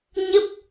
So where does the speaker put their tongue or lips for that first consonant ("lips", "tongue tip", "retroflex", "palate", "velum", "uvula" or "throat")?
palate